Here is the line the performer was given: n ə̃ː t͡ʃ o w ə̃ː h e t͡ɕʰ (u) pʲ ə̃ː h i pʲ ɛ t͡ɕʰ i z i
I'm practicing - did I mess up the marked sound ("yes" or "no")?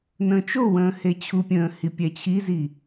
no